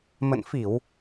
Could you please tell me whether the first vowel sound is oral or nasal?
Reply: oral